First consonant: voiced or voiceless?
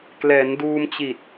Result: voiceless